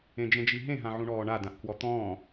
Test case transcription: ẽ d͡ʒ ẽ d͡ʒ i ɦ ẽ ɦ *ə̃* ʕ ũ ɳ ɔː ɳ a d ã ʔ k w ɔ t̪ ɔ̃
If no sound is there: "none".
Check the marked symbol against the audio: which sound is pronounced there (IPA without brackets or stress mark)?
ã